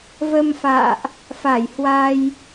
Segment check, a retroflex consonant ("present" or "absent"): absent